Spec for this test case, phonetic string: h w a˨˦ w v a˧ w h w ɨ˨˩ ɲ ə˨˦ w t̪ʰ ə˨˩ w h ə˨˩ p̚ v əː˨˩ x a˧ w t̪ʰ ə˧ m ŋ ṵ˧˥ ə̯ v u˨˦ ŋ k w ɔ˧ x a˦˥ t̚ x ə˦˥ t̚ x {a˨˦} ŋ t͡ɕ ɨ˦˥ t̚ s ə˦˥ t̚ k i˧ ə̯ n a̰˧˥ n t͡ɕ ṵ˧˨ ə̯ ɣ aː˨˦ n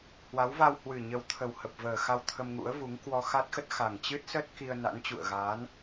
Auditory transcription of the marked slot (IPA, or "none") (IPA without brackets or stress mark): a˨˩